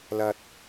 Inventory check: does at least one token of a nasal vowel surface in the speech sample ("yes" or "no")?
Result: no